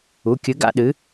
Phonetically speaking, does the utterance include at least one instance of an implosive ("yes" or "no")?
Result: yes